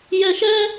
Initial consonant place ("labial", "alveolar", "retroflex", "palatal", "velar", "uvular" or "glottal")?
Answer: palatal